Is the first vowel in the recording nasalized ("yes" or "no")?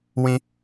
yes